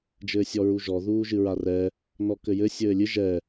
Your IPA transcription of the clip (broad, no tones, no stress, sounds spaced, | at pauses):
d͡ʒ ɘː sʲ ɔ ɹ u ʒ ɔ ð uː ʒ ɨ ɹ a r ɛ | n ɔ k ɘ j ɘ sʲ ɘː lʲ ɨ ʒ ɛ